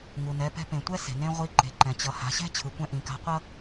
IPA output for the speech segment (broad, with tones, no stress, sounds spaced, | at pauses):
ŋ u˩ n ɛ˩˧ p ɛ̤˧ p ẽ˩ tʷ ɛ˥ s e̤˩ n ẽ˥ ʁʷ i˧˥ ǃ e̤˩˧ ǃ ɛ̃˩ t͡ɕ ʌ˩˧ h a̤˩˧ ɕ ɛ̤˥ t͡ɕʰ ɯ˩˧ kʷ ɛ̃˥ ʔ ĩ˩˧ k a̤˧˥ qʷ ʌ˥